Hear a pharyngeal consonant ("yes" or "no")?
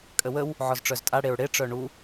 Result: yes